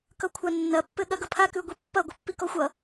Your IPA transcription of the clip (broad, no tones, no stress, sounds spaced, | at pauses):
k ʌ kʷʰ a nː ɐ pː ɘ ɠ ɐ ɡ ʌ pʰ a k ʉ ɡʷ i pː ɐ ɡʷ ʌ pː i k ɔ xʷ ʌ